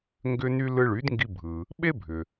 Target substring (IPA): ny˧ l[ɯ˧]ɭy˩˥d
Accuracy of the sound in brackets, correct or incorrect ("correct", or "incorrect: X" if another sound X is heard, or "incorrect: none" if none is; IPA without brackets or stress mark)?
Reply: correct